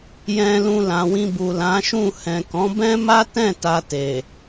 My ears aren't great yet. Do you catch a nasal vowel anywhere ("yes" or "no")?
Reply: yes